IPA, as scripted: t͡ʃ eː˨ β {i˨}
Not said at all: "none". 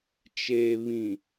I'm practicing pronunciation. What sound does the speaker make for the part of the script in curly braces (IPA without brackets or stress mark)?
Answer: ĩ˨